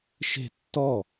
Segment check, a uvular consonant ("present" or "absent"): absent